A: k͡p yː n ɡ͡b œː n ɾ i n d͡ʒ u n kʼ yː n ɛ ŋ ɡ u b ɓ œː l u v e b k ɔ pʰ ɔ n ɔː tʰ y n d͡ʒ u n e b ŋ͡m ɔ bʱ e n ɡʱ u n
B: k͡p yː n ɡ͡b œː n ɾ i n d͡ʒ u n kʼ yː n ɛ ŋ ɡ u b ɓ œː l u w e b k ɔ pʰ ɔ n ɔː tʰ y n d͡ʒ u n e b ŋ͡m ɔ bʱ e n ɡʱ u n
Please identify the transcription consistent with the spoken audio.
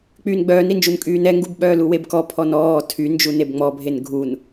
B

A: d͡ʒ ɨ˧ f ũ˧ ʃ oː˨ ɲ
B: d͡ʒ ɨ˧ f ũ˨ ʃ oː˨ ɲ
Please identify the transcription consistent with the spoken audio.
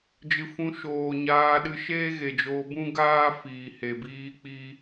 A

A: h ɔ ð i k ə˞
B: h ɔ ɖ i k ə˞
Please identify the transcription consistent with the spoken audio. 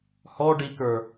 B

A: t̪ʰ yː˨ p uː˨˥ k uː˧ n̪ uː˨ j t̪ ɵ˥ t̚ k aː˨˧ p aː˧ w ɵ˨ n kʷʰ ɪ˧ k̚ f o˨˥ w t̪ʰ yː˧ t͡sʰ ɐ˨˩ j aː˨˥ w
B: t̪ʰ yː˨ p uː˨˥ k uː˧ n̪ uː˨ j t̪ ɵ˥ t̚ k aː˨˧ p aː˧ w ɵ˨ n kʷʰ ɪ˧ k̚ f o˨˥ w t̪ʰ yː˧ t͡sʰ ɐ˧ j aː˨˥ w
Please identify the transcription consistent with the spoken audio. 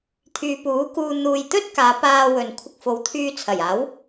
A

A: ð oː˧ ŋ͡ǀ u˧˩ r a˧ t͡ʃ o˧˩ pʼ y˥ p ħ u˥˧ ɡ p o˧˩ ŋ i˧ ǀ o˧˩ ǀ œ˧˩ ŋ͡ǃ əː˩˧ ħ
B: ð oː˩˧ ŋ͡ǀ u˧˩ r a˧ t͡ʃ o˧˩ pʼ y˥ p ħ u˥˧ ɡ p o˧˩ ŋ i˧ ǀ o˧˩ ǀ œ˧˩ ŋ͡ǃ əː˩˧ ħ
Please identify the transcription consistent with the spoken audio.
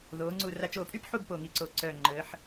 B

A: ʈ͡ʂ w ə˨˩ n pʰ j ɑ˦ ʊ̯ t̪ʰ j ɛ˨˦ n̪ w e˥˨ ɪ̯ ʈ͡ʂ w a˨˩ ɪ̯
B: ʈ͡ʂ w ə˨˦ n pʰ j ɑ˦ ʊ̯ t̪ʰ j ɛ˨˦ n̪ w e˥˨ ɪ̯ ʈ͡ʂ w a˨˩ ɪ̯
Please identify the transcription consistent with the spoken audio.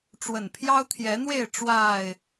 A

